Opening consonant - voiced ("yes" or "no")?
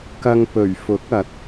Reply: no